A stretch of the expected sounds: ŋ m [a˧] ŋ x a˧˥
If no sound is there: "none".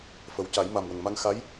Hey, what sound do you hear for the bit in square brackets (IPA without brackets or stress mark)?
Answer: a˧